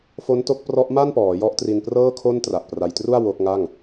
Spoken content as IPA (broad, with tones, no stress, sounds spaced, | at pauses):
f o˦˥ n t o˦˥ k̚ p r ɔ˦˥ ʔ m a˥˩ n p ɔː˩˦ j ɔ˦˥ ʔ t r i˧ n p r ɤː˥˩ kʰ o˥˩ n t r a˨˩ ʔ p r a˧ j t r u˥˩ a̯ w o˦˥ k̚ ŋ a˥˩ ŋ